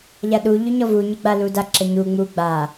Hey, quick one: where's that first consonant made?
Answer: palate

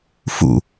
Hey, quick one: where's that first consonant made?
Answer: lips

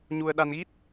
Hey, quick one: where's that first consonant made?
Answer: palate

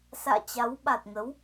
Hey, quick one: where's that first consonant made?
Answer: tongue tip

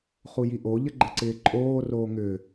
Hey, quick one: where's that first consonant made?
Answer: uvula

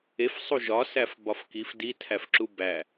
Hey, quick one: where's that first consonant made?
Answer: lips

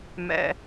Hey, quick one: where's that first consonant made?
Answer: lips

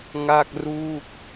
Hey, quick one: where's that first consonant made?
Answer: velum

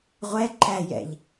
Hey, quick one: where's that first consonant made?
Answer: uvula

